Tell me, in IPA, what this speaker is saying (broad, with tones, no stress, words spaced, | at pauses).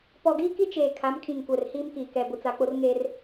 pɔ˨ɡiː˦ki˦ t͡ʃeː˨ kʰa˨˦mkʰĩ˨ŋ kʷɛ˨rhiː˦mkiː˨ kɛ˨ bʊ˨t͡sa˨k͡pʊ˦rŋeː˦r